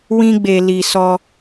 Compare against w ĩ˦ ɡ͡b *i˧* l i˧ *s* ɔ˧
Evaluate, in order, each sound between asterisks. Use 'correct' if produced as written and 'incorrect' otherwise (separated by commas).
incorrect, correct